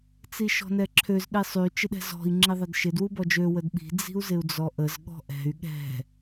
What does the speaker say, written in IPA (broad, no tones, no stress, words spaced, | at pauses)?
t͡siʃɔ̤nɛǁʰøz ɗisˤy t͡ʃɪɗɛ̤zɔ̤i̯ ŋ͡ǁiðˤɛdʃɪd wubɔd͡ʒø wədɓi̤ d͡zi̤u̯zɪu̯d͡zɔʔəz ɠɔ̤ʔɛ̤y̯ ɠɛ̤